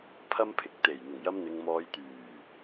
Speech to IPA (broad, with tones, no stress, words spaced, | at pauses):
pʰɐ˥mpʰɪ˨k̚ t̪e˨˩j n̪ʊ˨˩ŋjɐ˧mn̪ɪ˨ŋmɔː˨˧j t̪yː˨˩